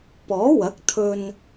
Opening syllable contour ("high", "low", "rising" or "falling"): rising